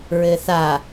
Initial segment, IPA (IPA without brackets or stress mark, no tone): ɹ